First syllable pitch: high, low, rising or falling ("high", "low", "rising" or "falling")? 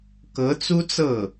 rising